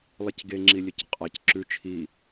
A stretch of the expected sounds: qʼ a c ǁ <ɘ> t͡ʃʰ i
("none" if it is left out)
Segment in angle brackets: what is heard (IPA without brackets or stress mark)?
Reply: ʉ